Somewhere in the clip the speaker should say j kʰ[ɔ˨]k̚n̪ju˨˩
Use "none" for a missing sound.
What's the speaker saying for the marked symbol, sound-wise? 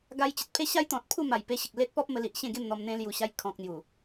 ɔ̃˨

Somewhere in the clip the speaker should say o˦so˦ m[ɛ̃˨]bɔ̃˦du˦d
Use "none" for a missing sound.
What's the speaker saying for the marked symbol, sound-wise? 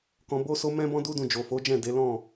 ɛ̃˦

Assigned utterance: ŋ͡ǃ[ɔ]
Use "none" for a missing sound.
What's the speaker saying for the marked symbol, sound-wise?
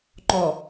ɔ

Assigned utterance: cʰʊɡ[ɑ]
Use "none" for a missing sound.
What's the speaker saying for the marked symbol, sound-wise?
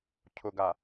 a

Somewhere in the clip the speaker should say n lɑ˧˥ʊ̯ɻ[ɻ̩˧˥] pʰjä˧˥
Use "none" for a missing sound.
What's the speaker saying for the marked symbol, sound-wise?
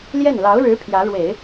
ɻ̩˧˥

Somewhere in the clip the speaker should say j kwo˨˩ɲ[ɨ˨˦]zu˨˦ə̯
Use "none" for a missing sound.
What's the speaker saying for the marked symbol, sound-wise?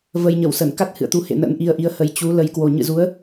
ɨ̰˧˨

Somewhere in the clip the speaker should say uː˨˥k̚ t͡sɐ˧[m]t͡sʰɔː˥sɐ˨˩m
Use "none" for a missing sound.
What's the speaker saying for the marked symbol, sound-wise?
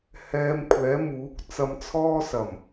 m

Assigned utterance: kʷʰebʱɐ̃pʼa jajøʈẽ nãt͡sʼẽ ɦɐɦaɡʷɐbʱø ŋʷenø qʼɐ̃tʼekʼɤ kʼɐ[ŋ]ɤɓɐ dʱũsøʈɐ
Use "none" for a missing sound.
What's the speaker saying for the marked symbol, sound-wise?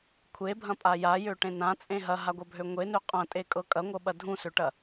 ŋʷ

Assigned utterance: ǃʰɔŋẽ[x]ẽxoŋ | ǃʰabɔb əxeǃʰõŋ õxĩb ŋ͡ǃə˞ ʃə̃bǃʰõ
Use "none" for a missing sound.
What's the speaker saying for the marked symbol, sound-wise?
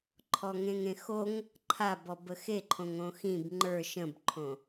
ŋ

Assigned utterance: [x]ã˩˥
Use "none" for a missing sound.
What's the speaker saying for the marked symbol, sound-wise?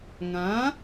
ŋ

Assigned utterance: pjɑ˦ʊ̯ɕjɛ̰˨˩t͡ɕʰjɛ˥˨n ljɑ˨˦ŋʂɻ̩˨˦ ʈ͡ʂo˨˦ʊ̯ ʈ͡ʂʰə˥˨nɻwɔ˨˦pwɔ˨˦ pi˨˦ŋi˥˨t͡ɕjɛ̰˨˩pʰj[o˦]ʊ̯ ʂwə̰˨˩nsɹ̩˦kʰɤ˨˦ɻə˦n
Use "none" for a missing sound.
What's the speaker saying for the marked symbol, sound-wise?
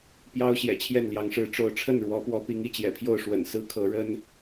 o˥˨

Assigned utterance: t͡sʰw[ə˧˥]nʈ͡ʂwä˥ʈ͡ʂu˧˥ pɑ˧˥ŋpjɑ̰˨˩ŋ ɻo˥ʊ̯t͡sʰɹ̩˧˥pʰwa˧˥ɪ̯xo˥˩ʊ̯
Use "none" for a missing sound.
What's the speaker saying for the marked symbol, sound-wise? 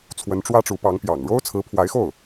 ə˧˥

